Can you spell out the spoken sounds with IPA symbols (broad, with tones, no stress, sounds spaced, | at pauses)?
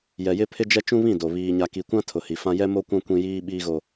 j ɛ˨ j ɪ˦ pʰ ɪ˦ d͡ʒ ɛ˦ t͡ʃ ũ˦ β ĩ˦˨ d o˨ β iː˨ ɲ a˨ k i˨ kʷ ã˦ tʰ ʊ˨ h i˨ f ã˦ j ɛ˦ m o˦ kʷ ã˦ kʷ ĩ˦ j iː˦ ɓ iː˦ ɣ o˦